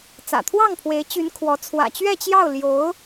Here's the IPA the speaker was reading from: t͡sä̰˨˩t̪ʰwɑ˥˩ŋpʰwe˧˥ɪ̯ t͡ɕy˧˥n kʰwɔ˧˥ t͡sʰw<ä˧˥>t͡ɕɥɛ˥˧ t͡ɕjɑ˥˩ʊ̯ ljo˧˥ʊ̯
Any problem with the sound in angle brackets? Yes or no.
yes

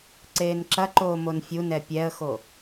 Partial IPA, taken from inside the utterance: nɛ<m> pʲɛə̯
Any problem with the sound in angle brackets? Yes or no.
yes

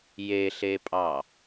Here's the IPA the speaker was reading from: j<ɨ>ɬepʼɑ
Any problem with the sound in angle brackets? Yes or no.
yes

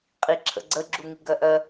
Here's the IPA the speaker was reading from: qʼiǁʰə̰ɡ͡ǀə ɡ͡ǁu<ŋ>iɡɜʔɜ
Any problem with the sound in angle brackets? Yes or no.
no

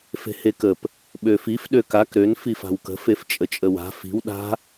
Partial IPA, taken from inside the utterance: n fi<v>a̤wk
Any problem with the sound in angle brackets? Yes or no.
yes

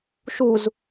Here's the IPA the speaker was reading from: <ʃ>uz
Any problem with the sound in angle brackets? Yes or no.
no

